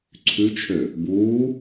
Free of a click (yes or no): no